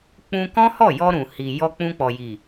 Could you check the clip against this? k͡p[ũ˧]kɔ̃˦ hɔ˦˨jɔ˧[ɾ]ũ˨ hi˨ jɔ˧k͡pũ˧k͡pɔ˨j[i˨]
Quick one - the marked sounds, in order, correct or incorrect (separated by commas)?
correct, correct, correct